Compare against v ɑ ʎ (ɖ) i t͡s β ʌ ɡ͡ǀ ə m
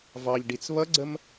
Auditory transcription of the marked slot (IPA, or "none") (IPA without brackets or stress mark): ɖ